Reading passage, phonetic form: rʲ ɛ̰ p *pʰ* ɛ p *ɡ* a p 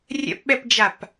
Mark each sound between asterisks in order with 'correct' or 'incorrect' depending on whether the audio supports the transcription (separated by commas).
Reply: incorrect, incorrect